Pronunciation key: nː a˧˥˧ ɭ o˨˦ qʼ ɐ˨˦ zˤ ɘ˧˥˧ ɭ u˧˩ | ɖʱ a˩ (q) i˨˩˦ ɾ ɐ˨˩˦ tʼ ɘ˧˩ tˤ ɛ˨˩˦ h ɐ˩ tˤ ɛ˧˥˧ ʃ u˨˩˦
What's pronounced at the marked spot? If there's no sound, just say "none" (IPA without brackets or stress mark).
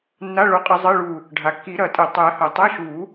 kː